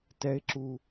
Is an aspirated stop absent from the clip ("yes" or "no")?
yes